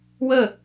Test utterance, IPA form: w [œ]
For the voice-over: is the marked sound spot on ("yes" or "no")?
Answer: no